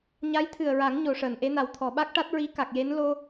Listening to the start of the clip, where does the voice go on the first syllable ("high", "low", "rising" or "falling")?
rising